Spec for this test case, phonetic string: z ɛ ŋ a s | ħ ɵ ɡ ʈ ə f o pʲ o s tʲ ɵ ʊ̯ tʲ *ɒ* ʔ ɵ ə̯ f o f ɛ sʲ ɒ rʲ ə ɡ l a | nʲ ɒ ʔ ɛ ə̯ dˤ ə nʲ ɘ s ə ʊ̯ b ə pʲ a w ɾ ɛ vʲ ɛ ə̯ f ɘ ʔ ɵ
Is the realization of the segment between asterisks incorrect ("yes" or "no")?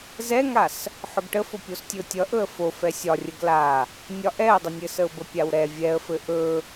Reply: yes